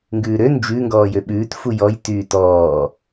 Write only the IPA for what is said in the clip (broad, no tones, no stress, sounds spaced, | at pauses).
ŋ ɡ ʉː ɾ ø n d͡ʒ ʉ ŋ ɡ ɔː j ø ɓ ʉː t f u j ɔ j t yː t ɔː